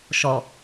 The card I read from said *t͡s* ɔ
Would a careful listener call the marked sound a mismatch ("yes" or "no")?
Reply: yes